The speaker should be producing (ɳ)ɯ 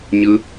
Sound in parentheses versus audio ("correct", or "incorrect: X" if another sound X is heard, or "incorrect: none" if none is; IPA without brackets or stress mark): incorrect: ɲ